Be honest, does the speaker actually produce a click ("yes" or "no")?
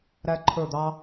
yes